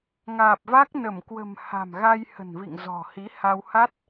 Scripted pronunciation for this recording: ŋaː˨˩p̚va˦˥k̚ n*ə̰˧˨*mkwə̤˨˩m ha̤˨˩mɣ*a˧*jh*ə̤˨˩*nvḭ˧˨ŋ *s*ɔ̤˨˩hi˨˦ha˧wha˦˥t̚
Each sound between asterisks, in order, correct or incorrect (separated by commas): incorrect, correct, correct, incorrect